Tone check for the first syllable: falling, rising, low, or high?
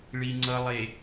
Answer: low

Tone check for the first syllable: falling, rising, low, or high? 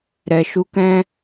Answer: low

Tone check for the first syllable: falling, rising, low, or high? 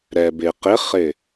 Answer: low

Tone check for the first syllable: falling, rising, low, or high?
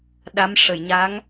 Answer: rising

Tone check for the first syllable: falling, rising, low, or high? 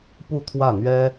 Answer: falling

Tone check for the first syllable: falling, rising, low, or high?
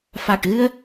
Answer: low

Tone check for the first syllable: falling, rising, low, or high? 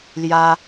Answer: high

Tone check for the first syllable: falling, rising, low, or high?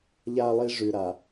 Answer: high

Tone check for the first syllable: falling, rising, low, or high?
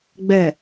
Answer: low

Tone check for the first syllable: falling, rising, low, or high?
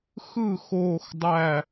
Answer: falling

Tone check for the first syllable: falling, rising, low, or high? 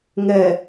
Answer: low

